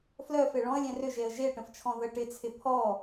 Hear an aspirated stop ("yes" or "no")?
yes